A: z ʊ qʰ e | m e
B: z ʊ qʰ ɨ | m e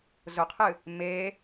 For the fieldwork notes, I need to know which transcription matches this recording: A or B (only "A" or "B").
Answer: B